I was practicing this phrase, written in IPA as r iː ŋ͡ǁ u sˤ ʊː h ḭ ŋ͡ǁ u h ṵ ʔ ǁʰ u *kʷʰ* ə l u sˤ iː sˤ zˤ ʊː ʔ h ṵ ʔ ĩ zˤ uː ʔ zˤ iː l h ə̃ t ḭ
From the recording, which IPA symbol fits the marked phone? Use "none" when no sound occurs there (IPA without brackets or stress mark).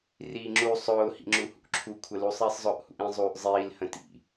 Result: kʷʰ